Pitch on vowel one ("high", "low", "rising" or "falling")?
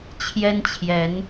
high